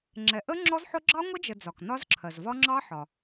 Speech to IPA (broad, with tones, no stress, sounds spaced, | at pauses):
ŋ͡ǁ ɛ˩ ʔ ə˦˥ ŋ͡ǁ ɔ˦˥ z ħ ʊ˦˥ ɡ͡ǁ ɑ˦˥ ŋʷ ə˦˥ d͡ʒ ə˩ d͡z ɒ˩ k n ɒ˦˥ z ǁʰ ɜ˩ z v ɒ˦˥ ŋ͡ǁ ɑ˦˥ ħ ɒ˩